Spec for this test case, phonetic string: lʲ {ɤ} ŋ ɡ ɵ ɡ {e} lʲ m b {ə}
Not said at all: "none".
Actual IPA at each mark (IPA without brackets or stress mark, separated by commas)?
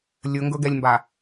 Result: ɵ, ɛ, a